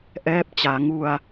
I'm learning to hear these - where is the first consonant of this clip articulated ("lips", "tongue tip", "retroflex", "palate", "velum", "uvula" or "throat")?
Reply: throat